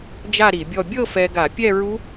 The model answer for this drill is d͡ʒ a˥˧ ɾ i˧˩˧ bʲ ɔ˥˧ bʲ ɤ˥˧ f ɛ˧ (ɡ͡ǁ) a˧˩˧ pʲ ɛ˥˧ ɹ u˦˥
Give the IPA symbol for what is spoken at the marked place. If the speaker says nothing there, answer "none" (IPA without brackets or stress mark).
ɡ